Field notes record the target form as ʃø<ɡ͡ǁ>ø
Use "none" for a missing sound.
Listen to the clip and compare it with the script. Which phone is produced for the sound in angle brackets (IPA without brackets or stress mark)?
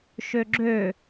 ɡ͡ǁ